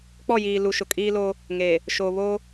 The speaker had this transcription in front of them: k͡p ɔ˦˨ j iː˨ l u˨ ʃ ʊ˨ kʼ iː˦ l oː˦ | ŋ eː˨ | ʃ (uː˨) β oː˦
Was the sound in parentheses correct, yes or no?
no